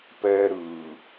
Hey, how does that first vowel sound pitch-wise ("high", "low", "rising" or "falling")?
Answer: high